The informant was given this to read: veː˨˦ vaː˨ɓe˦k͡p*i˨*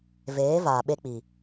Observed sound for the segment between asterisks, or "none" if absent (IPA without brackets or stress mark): i˨